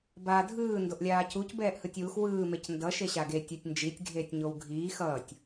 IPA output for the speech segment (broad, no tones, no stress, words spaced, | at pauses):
baːdʱɯː ndoʔlʲaːcuc bɛːʔhɯtʲwux wɯː mecndʌ ʃeɕaɡetʲ otʲnd͡ʒitʲ ɡʱeːtʲɲowɡʱiː xʌːtʲ